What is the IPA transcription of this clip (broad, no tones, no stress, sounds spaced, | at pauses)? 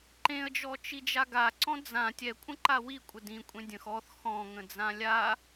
ǃ ẽ ə̯ d͡ʒ ɔ t͡ʃ i d͡ʒ a ɡ a ǀ ɔ̃ d͡z ã tʲ ɛ kʷʼ ə̃ ǃ a w i kʷʼ ə d ĩ kʷʼ ẽ dʲ ə̃ x ɔ θ x ɔ̃ ŋ ə̃ d͡z ã lʲ a